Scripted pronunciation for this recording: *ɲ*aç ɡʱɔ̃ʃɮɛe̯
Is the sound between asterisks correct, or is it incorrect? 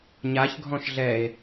correct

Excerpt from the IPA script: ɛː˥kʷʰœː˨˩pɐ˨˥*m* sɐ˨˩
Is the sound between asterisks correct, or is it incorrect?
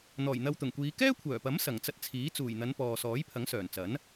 correct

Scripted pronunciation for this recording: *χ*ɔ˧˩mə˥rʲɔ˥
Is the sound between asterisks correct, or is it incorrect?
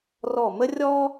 incorrect: r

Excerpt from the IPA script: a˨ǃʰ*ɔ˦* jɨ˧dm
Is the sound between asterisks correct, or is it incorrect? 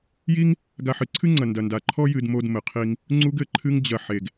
correct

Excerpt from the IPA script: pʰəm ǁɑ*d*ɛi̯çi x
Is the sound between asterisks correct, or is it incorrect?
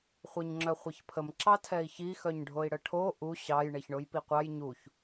incorrect: tʰ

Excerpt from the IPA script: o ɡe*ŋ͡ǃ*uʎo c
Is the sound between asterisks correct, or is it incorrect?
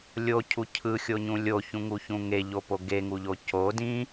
incorrect: ŋ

